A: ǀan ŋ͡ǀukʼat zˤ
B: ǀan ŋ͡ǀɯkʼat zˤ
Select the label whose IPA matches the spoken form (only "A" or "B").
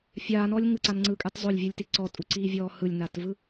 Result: B